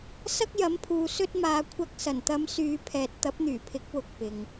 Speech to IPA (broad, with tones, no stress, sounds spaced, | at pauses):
s ɐ˥ k̚ j ɐ˨˥ m pʰ uː˨ s ɵ˥ t̚ m aː˧ kʷʰ ɐ˧ k̚ s ɐ˨˩ n t̪ ɐ˨˧ m s yː˨˧ pʰ ɛː˨ t̚ t̪ ɐ˨˥ p̚ n̪ yː˨˩ pʰ ɪ˨˥ k̚ w ʊ˨ k̚ p ɪ˨ ŋ